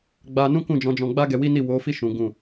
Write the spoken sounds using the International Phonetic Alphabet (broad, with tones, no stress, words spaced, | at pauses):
ɡ͡ba˧ nũ˦kũ˦˨d͡ʒɔ̃˨˦d͡ʒɔ̃˧ ɡ͡ba˦ɡɛ˧wi˦ni˦˨ wo˨˦fi˦˨ ʃũ˨˦ɡũ˦˨